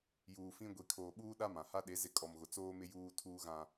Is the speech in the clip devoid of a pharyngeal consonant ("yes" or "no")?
yes